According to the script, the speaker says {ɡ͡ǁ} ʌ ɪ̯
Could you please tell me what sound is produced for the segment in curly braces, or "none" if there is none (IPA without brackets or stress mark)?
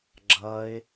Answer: ɡ͡ǁ